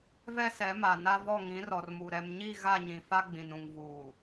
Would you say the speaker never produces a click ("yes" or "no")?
yes